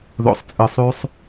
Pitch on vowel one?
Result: low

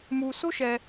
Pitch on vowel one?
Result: low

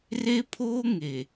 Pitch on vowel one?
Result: high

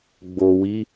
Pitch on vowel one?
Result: low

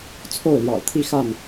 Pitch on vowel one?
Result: falling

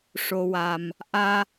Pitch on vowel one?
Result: low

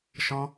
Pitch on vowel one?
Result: high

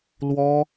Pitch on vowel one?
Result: high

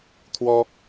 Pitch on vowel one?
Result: high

